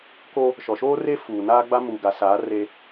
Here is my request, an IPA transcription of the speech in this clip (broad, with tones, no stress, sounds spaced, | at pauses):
k o˦ | ʃ ɔ˨ ʃ oː˦ r e˦ f uː˨ n aː˦ ɡ͡b a˦ m uː˨ ɡ a˨ s aː˨˦ r e˦